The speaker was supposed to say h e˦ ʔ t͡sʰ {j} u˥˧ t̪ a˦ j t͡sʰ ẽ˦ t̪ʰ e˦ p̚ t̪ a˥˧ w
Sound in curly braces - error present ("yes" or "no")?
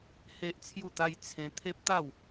no